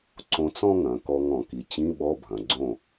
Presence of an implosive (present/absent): present